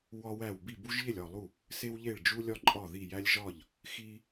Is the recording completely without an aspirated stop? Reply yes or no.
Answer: yes